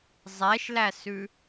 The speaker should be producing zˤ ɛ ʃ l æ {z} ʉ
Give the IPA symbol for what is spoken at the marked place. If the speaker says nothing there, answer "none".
s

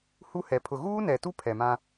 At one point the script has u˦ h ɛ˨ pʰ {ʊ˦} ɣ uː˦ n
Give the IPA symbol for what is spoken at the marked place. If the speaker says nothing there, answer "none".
ʊ˨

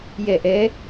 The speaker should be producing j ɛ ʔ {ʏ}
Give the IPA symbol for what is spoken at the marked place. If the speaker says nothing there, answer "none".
ɛ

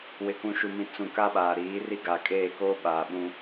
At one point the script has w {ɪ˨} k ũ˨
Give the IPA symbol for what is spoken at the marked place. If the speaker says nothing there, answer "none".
ɪ˨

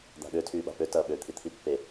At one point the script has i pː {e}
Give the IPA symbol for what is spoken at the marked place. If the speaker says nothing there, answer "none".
e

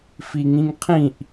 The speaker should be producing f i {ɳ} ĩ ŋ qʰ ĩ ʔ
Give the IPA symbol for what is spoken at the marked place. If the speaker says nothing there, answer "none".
ŋ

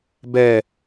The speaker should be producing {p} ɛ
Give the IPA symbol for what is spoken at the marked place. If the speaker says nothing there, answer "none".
b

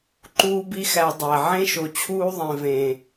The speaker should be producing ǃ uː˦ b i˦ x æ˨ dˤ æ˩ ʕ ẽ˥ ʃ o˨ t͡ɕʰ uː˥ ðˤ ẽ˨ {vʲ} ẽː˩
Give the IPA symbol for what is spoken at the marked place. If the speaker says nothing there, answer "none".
v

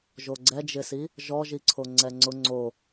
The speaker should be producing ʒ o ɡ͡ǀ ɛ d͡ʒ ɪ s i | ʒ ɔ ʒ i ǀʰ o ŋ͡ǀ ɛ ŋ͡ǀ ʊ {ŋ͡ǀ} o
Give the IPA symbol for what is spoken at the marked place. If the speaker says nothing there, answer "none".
ŋ͡ǀ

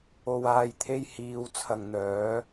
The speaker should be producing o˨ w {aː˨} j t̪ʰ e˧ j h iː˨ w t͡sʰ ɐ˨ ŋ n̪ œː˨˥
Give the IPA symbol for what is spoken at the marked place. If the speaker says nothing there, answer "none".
aː˨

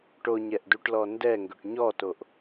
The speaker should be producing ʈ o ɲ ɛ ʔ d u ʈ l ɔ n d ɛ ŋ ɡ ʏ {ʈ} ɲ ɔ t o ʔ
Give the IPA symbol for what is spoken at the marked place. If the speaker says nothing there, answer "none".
ʈ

